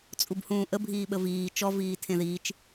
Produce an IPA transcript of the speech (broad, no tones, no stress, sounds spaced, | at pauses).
t͡sʼ u b h ũː ʔ ə bʱ iː ɓ ə v iː t͡ʃ ɔ v iː tʰ ẽ ð iː t͡ʃ